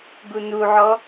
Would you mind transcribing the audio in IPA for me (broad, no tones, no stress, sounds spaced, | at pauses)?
ɡ u n u ʕ ɔ